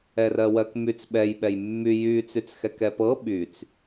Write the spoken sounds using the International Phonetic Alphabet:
ɛrɜwɜkmyt͡s ɓɛj ɓɛjmːy jy t͡syt͡sxɛkɛpɤ ɓyt͡s

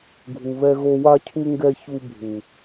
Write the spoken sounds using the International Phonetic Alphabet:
ɡʱu˨βɛ˧ɣo˧ wa˧cʰu˧ŋɡɛ˧ çu˧bʱu˨

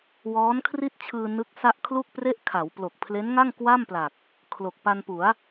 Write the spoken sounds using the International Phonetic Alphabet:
wɔː˦˥nkʰri˥˩t̚t͡ɕʰɯː˧ nɯ˦˥k̚ sa˥˩ʔ kʰlu˥˩k̚pre˥˩ʔ kʰa˩˦wplo˨˩k̚pʰle˦˥nŋa˥˩ŋ kwa˥˩mpla˨˩k̚ | kʰlo˨˩k̚ pa˧npu˩˦a̯

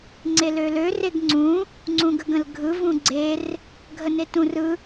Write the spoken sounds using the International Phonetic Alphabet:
ŋ͡ǀelølø reɡŋ͡ǀũ | ŋ͡ǀũɡəɡə̃lɡʱɯ vũɡ͡ǀer | ɡʱənetũ rɯ

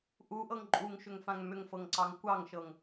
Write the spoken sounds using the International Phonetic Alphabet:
ʔuʔɤŋ ǃʼuŋʃʏŋfãŋ mʏŋfɤŋǀɑŋ kʷɑŋʃɤŋ

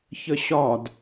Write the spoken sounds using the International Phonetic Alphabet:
çəɕɒd

